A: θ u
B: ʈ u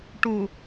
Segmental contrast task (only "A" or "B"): B